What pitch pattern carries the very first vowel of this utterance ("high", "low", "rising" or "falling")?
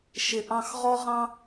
low